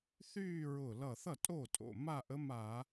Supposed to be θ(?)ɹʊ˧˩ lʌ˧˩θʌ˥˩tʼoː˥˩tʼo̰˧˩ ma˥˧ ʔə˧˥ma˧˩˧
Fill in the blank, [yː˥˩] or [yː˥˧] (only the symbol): yː˥˧